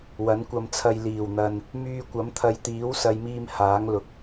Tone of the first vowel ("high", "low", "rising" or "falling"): rising